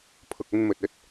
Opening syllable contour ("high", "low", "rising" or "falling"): low